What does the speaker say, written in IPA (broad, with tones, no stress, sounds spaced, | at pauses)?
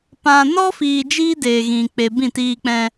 p ã˧ n ɔ˦ f iː˧ d͡ʒ iː˦ d eː˨ ɣ ĩ˨ k͡p e˨ b ĩ˦˨ t iː˧ k͡p ɛ̃˧